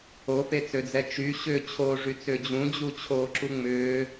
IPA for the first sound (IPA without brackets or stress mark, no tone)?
o